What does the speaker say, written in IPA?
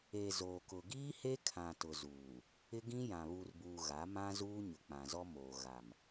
e˨ z oː˨ k ʊ˨ ɡ iː˦ h e˦ kʰ ã˨ t ʊ˨ z uː˨ | ɪ˦ ɡ ĩ˦ j ã˨ β u˨ r b uː˨ ɣ a˨˦ m ã˦ z uː˦ ɲ ʊ˨ k͡p ã˨ z ɔ˦ m oː˨ ɣ a˨ m

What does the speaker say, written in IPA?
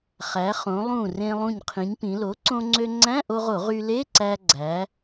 χ æ˩˧ χ õ˩˧ lˠ ũ˧˩ r ẽ˧ lˠ ũ˧˩ ɲ qʰ ĩ˩˧ ɲ p ĩ˩˧ l o˩˥ ǀ õ˧ ŋ͡ǀ ø˧ ŋ͡ǀ æ̃˧˥˧ ʔ o˧ ʁ o˧˩˧ ʁ y˧ l e˧˥˧ ǀ æ˧ ɡ͡ǀ æ˩˧

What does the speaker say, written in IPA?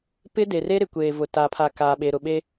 p ɪ˦ d e˨ r e˦ ɾ ɪ˨ kʷ eː˨ v ʊ˨ t aː˨ pʰ a˨ k aː˨ ɓ e˨ ɾ ʊ˨ ɓ e˦

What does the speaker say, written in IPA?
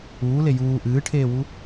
uː l e j uː ʔ ɨː ʈʰ eː w u

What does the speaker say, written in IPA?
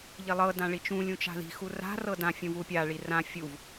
ʎ i lˠ ɤ d ã ɭ i t͡ʃ ũ lʲ ũ t͡ʃ a̤ ð i̤ x u r a̤ r ɤ d ã fʲ ũ v u pʲ a ɭ i r ã fʲ u v

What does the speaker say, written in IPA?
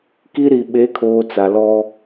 k i˦ ɾ i˨ ɓ e˨˦ kʰ oː˨ t͡s a˨ l ɔ˦

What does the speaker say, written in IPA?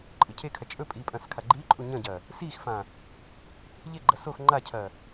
ǃʼ ɨ cʰ e kʰ ɐ t͡ʃʼ ɵ pʼ iː pʼ ɐ̃ː s kʰ a ɡ͡ǃ iː ǃʼ u ɲ ɐ̃ ɟ ɐː | s iː x f ã | ʎ e ɡ͡ǃ ɐ s o x ŋ͡ǃ a cʰ ɐː

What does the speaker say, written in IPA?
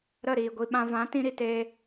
ɾ ə˦˨ ɾ iː˨ ɡʷ i˧ ɓ ã˦ v ã˨˦ t ĩ˧ ɾ i˧ t eː˦

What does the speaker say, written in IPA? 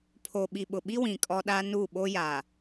pʰ o˨ ɓ i˨ ɓ ʊ˨ ɓ i˦ w ĩ˨ kʼ ɔ˦ ɗ a˦ n u˦˨ ɓ o˦ j a˨

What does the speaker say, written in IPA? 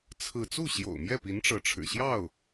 t͡sʰ ɹ̩˥˧ t͡s u˥˩ ɕ j o̰˨˩ ʊ̯ m j ɛ˥˩ p i˧˥ n ʈ͡ʂ ɤ˧˥ ʈ͡ʂʰ ɻ̩˨˩ ɕ j ɑ˥˩ ʊ̯

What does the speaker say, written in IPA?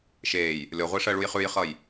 ʃ eː j | lʲ ɔ ʁʷ i ʂ ɜ ɭ u j χ ʉ j χ ʌ j

